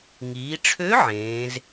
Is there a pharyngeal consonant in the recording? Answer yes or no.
yes